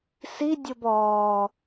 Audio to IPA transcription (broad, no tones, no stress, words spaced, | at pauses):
si dʲobɔː